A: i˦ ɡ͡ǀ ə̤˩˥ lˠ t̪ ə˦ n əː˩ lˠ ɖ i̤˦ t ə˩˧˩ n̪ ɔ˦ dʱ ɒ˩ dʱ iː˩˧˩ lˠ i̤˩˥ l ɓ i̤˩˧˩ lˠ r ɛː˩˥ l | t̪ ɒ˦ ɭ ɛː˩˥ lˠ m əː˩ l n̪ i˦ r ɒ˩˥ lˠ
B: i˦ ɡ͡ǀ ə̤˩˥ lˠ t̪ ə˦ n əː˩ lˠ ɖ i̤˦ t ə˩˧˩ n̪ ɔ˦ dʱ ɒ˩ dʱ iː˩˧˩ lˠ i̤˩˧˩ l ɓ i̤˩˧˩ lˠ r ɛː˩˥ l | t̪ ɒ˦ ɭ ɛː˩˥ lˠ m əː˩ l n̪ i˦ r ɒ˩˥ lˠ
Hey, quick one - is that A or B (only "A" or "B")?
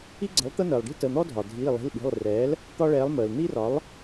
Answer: B